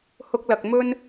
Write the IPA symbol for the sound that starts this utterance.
h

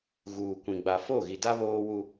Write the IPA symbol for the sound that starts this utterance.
ɣ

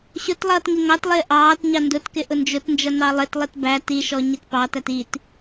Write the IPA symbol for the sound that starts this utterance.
ɕ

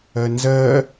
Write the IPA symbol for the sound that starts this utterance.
ɜ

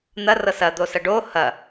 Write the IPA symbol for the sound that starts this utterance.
n̪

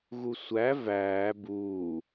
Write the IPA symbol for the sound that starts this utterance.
ɣ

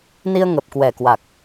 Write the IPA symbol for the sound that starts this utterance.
n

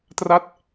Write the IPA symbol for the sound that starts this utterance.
t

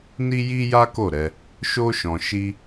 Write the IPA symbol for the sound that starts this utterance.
n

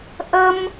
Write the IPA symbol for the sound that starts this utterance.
ʔ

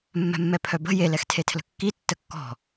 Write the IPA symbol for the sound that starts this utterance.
mː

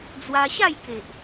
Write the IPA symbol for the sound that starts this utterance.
d͡z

